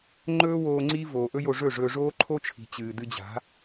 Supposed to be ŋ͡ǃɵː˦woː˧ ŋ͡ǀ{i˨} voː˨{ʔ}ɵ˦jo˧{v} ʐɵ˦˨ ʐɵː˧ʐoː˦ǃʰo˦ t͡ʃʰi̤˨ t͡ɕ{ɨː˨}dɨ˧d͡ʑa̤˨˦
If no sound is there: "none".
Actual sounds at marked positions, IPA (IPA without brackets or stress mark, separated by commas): i˦, ʔ, none, ɨː˨